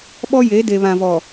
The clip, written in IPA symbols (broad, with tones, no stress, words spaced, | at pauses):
ɓɔ˦je˨˦de˨ βã˨vɔ˨